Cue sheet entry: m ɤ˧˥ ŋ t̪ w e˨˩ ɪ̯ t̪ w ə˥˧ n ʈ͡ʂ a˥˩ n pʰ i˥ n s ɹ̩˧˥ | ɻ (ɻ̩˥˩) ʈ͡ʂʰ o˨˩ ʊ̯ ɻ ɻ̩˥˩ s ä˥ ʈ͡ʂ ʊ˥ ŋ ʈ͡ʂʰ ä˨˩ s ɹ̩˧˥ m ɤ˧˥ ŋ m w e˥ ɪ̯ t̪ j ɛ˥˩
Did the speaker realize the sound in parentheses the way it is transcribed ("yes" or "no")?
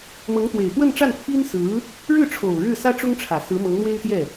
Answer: yes